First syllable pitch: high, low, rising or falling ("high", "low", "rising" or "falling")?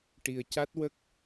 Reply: low